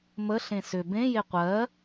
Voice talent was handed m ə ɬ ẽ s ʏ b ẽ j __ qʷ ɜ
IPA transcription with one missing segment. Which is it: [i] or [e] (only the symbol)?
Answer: e